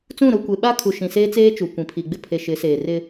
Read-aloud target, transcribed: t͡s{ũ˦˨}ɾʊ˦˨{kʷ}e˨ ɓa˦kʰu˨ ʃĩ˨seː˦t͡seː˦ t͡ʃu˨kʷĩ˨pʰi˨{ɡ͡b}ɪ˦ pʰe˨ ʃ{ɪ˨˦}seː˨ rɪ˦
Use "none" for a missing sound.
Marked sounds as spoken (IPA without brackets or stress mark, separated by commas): ũ˦˨, kʷ, ɡ͡b, ɪ˨˦